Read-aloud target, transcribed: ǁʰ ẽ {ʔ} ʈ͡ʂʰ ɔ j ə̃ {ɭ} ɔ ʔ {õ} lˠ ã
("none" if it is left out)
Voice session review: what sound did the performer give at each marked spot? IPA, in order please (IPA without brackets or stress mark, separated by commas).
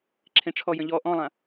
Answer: none, ʎ, ɔ̃